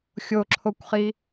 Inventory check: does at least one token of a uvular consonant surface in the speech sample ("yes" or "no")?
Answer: yes